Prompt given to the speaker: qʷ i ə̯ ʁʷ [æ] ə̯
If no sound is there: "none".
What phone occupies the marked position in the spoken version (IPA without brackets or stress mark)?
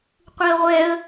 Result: ɛ